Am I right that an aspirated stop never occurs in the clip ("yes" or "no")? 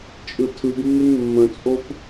no